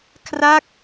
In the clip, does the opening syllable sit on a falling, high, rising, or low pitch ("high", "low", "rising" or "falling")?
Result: falling